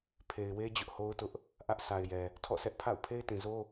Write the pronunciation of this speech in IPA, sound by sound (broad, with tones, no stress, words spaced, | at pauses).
pʰe˨ɪ̯we˦ d͡ʑʊ˦ʔho˦ʊ̯tʊ˦ʔ | ʔä˦ʔ sʰa˨ɪ̯jɛ˨ | tʰɔ̰˦˨sɛ˦ʔ pʰa̰˦˨ʊ̯ pʰe˦ɪ̯tĩ˨zo˦